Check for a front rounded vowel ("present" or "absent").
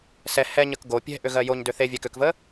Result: present